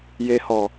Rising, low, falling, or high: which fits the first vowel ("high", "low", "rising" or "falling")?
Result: low